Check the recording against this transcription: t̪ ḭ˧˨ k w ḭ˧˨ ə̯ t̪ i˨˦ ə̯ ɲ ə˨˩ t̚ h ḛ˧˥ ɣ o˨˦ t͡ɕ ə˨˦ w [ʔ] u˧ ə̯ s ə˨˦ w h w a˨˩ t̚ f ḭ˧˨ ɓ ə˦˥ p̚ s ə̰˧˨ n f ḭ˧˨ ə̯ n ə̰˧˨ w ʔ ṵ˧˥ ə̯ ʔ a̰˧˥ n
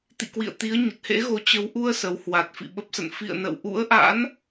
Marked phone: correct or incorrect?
correct